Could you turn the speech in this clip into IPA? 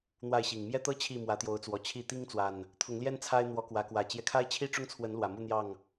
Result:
n̪ w a˥˨ ɪ̯ ɕ i˨˩ ŋ m j ɛ˦ t̪ ɤ˦ t͡ɕʰ i˥˨ m w ä˨˦ t̪ j o˨˦ ʊ̯ t͡s w ɔ˨˩ t͡ɕʰ i˥˨ t̪ i˦ ŋ t͡s w a˨˩ n | t̪ʰ ʊ˨˦ ŋ l j ɛ˦ n t͡sʰ a˦ ɪ̯ n̪ w ɔ˨˦ k w ä˨˦ k w ä˨˩ t͡ɕ j ɛ˦ kʰ a˦ ɪ̯ t͡ɕʰ i˦ ʈ͡ʂ ʊ˦ ŋ t͡sʰ w ə˨˦ n l w ä˨˩ m u˥˨ n̪ j ɑ˥˨ ŋ

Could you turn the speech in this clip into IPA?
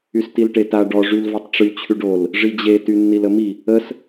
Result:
y s t i l ʈ e t a ɖ ɔ ʐ y l v ɔ tˤ ʈ͡ʂ y t͡ɕʰ y ɖ o l | ʐ i d͡ʑ e t y nː i l ə m i | ə s

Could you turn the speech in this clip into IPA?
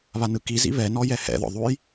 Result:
β a n ɯ k i z ḭ β ɛ n ɔ j ɛ h ɛ̰ ð ɔ̰ ðˤ u j

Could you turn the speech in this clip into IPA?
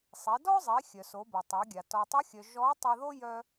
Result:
sˤ e˩˧ d ɔ˥ zˤ i˩˧ xʲ œ˩ s o˩˧ b o˩ tˤ e˩˧ ɡʲ a˩ t ɔ˩ tˤ ə˧˥ xʲ œ˩ ʒ ɔ˧˥ tˤ ə˧ ð o˥ j œ˧

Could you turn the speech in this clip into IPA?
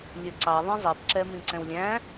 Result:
lʲ ɵ ǀ ɑ ðˤ ĩ zˤ i p ǁ ɛ m ĩ ǀ ɛ̃ w lʲ æ̃

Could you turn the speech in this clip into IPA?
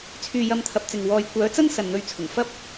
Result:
t͡sʰ yː˧ j ɐ˧ m t̪ʰ ɐ˨˥ p̚ t͡s ɪ˨ ŋ w ɔː˨ j kʷ œː˨˥ t͡s ɐ˥ n s ɐ˨ n n̪ ɵ˧ ɥ t͡sʰ ʊ˨˩ ŋ f ɐ˥ p̚

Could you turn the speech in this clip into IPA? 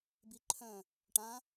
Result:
b i ǃʰ œ̃ | ʈ ã

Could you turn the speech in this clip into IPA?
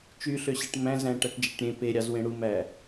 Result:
t͡ʃ y ɬ ø ɕ e ʈ m æ̃ z æ̃ ʈ æ ʈ d͡ʒ e ʈ ɾʲ ẽ p e ɾʲ ɑ z w ẽ ɽ u m æ

